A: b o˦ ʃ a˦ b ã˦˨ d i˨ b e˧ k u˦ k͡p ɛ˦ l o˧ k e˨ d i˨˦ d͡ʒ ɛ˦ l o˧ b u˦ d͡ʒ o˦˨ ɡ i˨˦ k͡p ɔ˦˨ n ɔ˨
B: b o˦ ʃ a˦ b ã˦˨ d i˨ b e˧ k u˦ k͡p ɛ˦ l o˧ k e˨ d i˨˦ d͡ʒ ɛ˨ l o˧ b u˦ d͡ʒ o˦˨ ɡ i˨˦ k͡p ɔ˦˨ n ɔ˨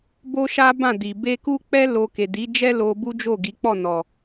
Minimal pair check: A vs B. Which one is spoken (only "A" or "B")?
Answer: A